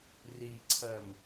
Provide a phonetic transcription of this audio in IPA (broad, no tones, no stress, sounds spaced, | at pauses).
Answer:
r i ǀʰ ɜ m